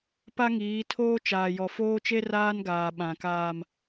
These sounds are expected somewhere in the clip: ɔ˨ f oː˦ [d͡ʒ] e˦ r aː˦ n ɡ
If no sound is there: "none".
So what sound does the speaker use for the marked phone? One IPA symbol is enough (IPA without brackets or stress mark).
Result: t͡ʃ